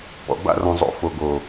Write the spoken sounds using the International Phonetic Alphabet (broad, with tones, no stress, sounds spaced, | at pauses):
p ɔ̰˨ b a̰˦˨ r ɔ̃˨ zˤ o̰˨ f o˨ ɡ o˨